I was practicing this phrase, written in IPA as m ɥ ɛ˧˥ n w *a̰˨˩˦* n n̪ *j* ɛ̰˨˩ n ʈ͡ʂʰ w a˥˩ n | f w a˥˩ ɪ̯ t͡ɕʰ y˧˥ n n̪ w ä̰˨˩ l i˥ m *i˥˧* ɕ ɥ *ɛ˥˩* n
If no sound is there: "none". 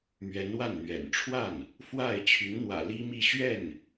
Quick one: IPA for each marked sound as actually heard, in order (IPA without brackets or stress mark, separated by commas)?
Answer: a˥˩, ɥ, i˥˧, ɛ˥˩